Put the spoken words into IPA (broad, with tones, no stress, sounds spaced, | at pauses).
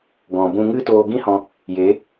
ɡ ɔ̃˨ b ũ˧ ŋ ɨ˦ t oː˧ ɡ ĩ˦ h ɔ̃˧ | j e˨˦